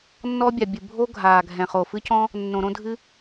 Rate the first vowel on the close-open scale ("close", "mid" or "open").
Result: mid